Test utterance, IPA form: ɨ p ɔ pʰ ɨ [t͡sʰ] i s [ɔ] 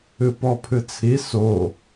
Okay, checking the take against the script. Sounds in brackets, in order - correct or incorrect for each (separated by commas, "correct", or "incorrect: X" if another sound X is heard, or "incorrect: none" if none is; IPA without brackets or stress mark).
correct, incorrect: o